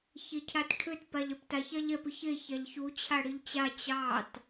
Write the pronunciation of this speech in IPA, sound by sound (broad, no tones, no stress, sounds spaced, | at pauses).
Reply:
ç e cʰ a t ʈʰ ʏ t p a ʎ ɛ p t a ç a ʎ ɛ p ʏ ç e ç a ʎ ç u t͡ɕʰ a ɽ i ʎ t͡ɕ a t͡ɕ ɑ t